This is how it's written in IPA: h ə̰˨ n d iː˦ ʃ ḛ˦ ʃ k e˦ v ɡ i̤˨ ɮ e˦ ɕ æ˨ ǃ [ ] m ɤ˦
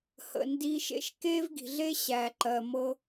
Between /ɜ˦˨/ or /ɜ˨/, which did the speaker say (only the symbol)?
ɜ˨